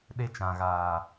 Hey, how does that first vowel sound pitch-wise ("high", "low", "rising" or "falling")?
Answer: high